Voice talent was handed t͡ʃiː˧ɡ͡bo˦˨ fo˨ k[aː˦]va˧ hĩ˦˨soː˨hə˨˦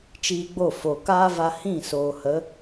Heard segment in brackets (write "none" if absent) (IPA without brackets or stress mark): aː˦